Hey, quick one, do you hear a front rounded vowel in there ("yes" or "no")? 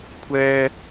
no